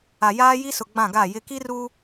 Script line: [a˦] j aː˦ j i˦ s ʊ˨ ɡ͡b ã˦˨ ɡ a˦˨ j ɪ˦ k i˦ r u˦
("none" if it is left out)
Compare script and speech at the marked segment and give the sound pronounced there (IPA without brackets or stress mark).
a˨